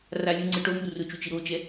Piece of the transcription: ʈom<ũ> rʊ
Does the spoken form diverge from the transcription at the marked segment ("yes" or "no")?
yes